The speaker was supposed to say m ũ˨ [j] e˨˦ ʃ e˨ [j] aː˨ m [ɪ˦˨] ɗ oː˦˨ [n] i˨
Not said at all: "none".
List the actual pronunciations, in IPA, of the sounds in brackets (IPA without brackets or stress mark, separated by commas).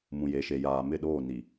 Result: j, j, ɪ˦˨, n